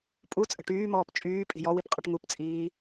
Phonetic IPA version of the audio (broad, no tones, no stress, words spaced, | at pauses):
pʼut͡sʼə̤ ʈyːmɔːp t͡ʃʼyː pʼi̤jɔwip qʼəʈŋupt͡sʼiː